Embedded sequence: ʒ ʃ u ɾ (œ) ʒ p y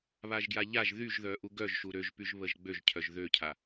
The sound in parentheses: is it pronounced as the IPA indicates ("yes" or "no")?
no